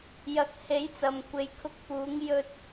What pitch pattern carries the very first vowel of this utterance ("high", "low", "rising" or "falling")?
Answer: rising